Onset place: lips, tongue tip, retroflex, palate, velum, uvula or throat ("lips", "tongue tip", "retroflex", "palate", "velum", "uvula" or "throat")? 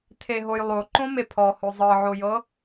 tongue tip